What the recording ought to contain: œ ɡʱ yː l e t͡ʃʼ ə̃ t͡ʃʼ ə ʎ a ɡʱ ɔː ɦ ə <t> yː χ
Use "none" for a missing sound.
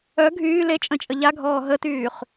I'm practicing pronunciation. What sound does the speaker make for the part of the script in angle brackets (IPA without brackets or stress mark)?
t